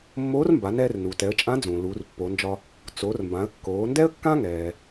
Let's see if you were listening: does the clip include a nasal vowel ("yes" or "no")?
yes